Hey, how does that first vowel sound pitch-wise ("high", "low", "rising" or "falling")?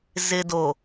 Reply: low